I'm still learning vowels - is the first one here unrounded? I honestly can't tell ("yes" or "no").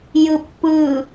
yes